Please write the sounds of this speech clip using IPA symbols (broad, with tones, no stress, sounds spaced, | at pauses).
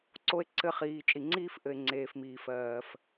ǀ o˧ e̯ ǀ ɘ˧ χ iː˨ t͡ʃʼ i˨ ŋ͡ǀ iː˦ f ʔ ɘ˨ e̯ ŋ͡ǀ eː˨ f m iː˨ f ɜː˨ f